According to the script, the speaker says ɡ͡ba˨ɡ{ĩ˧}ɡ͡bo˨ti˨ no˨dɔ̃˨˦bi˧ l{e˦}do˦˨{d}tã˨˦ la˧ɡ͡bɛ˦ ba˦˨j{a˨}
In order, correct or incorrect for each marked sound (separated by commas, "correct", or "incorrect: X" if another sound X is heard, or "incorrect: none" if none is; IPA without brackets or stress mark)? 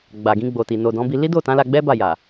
correct, incorrect: i˦, incorrect: none, correct